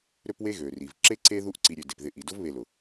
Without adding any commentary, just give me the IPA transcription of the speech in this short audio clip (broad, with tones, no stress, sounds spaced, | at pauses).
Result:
ɾ ø˦ p w e˦ ɣ ø˩ r i˩ v ǁ e˥ ǀ e˦ ð u˦ ʔ ǀ i˨ ɾʲ ø˨ d e˩ p ð ɪ˨ ʔ i˩ d ʊ˥ v β e˨ l ʊ˩